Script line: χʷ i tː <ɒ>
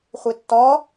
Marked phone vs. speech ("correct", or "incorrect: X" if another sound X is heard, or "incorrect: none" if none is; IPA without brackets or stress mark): correct